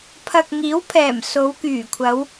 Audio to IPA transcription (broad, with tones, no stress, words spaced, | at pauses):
pʰɐ˨k̚ ŋiː˨˥wpʰɛː˨˩m so˨˧wkyː˨˩kʷʰɐ˨˧w